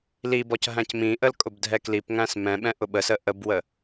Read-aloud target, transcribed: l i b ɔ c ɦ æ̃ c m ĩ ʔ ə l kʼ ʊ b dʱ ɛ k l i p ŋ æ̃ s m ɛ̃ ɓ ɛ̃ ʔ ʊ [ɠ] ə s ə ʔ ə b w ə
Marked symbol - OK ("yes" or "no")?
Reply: no